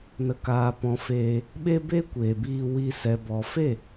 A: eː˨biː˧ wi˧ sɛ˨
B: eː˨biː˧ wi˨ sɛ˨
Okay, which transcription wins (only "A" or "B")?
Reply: A